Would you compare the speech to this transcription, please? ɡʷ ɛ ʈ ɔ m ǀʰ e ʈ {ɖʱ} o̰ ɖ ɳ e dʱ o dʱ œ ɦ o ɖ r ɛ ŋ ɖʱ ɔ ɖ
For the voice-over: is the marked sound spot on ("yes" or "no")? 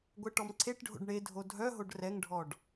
yes